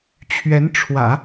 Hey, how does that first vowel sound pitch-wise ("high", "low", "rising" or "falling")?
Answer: rising